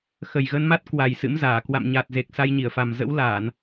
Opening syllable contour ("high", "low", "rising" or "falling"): low